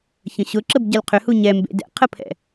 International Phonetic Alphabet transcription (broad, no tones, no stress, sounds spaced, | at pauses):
ç ə̃ ɕ ʊ ǁ ə b ɟ ɐ l qʰ ʏ h u ɲ ɛ m b ḛ d ɛ̰ qʰ ə pʰ ɛ̰